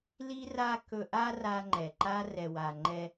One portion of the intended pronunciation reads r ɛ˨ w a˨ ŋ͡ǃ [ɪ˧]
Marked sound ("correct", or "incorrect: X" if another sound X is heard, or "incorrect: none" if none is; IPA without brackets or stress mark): incorrect: ɛ˧